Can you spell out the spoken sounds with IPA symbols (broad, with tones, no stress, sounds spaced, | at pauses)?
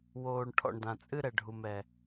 w oː˨ ɳ ʈʰ ɔ̰˨ ɳ d ã˨ t͡sʼ ɨ˦ ɾ ɛ˨ ɖʱ u˨ m ɛ˨